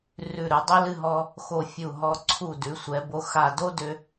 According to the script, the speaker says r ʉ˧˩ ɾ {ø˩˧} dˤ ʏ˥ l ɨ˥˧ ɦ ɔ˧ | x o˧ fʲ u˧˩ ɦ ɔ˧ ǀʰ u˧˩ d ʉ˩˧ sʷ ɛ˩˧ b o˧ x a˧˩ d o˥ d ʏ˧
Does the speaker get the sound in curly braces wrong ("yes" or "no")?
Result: yes